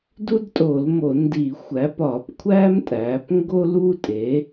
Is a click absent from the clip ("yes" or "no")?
yes